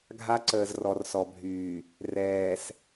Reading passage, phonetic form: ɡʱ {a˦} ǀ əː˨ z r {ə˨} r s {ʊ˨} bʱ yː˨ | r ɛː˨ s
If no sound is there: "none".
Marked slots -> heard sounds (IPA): a˦, ɔ˨, ɔ˨

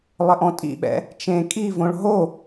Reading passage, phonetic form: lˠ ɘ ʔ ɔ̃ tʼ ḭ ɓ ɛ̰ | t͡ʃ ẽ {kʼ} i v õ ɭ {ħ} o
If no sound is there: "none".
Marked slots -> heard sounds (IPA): kʼ, ɦ

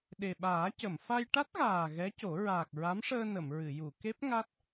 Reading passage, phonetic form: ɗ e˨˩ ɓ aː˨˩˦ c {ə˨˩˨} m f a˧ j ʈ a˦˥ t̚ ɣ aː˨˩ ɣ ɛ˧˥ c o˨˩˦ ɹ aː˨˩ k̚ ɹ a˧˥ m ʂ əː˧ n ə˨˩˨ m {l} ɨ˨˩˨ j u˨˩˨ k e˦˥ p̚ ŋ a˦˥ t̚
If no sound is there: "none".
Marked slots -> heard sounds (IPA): ə˨˩˨, ɹ

